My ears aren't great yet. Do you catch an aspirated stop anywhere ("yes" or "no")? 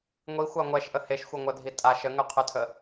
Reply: yes